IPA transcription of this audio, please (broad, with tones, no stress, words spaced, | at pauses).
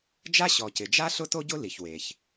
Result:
d͡ʒa˥ɕɔ˩cɪ˩d͡ʒa˥ ɬʊ˥to˥ɟʊ˥ li˩ç we˩ç